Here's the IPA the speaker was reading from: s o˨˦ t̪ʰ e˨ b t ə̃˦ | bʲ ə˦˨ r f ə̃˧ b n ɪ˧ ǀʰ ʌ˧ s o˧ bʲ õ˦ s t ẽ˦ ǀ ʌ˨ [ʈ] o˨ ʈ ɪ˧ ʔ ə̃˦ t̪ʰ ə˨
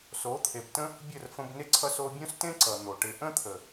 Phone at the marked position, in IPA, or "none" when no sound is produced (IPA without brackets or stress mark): n̪